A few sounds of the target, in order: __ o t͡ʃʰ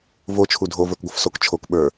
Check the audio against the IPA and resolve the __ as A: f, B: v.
B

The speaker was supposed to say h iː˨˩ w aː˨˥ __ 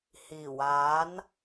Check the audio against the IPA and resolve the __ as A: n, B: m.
A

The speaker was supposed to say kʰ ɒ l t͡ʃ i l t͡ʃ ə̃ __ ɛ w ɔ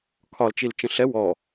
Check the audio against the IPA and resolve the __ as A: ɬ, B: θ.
A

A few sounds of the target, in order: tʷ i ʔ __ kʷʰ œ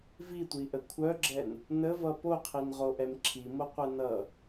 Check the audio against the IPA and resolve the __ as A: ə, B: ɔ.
A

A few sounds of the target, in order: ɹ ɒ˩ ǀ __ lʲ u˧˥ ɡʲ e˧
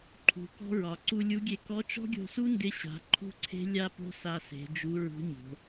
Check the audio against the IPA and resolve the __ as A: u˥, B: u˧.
B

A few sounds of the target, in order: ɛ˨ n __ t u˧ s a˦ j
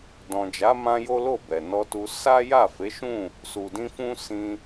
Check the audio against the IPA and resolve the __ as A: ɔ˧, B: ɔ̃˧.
A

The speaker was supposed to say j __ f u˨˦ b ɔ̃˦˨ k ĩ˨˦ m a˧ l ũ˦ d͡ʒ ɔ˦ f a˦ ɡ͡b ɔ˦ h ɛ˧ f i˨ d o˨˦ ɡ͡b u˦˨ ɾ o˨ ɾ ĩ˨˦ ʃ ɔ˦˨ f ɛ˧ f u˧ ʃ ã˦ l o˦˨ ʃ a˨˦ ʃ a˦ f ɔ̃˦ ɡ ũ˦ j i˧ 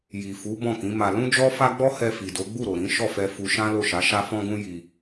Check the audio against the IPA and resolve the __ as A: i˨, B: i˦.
A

